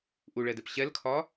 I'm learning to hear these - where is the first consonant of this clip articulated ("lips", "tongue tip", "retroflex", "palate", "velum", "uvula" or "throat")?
throat